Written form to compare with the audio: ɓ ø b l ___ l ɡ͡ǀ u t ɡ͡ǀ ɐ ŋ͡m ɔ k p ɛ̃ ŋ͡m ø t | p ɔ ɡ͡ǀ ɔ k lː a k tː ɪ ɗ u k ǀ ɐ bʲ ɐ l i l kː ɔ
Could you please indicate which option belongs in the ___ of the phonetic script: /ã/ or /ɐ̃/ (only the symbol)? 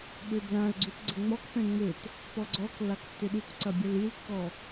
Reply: ã